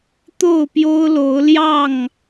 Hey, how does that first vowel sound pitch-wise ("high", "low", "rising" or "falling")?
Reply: falling